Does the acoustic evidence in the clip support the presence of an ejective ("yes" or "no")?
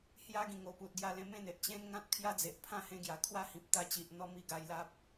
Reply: no